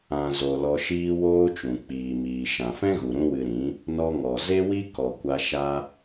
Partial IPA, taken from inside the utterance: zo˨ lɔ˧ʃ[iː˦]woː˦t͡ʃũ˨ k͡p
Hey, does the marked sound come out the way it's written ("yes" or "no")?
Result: yes